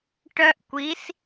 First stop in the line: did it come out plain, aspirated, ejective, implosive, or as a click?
plain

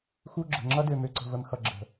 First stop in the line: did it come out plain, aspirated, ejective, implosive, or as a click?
click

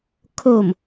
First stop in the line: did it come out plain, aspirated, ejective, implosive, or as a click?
aspirated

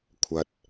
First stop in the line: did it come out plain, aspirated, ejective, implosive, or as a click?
aspirated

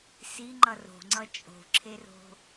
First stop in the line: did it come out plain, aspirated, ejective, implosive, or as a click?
click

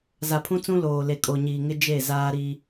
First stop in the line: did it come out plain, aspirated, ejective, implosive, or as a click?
aspirated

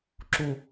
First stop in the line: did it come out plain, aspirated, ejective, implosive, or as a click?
click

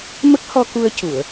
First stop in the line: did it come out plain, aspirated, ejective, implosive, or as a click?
plain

